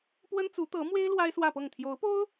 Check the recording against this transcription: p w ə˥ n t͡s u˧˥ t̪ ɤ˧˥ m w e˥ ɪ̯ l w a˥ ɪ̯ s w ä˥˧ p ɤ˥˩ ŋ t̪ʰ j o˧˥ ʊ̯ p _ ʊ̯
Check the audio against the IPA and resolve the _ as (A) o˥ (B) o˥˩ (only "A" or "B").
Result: A